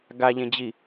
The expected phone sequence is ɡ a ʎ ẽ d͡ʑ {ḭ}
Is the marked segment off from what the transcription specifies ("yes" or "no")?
yes